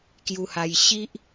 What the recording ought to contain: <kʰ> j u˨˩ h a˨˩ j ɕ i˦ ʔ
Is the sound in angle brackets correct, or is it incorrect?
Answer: incorrect